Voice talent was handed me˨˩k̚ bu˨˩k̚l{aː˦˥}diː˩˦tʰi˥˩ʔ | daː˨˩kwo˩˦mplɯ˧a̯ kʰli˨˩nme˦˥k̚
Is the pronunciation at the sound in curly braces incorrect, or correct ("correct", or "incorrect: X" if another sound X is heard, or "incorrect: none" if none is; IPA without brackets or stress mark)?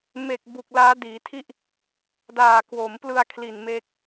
correct